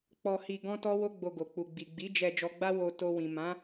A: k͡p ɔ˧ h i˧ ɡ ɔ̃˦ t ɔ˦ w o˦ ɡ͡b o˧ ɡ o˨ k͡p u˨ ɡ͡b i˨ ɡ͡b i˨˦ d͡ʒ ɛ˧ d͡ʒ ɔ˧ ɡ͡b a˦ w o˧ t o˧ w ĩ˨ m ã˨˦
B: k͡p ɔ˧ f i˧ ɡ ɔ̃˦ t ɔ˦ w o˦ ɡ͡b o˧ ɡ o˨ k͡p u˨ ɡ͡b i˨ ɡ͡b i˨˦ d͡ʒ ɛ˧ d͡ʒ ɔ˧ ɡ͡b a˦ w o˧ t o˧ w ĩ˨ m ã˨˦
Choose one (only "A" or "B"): A